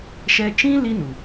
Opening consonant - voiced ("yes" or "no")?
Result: no